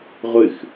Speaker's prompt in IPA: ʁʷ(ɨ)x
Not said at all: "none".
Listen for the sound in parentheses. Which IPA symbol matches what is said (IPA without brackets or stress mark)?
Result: ɨ